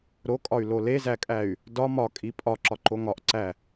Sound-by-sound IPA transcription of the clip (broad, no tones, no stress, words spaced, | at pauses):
ɾokʼɒy̯ lolezækʼæy̯ | dɒ mɒkʼi pʼɒǁɒ ǃoŋɒʔǀæ